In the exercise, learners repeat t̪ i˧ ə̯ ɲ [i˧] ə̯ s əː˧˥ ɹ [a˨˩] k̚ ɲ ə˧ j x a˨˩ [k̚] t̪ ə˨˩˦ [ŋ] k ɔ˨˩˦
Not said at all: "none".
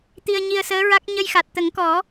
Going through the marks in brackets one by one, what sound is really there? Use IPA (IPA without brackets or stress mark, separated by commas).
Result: i˧, a˦˥, t̚, ŋ